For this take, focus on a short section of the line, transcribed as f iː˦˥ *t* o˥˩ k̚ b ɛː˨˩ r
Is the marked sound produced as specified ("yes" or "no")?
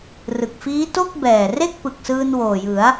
yes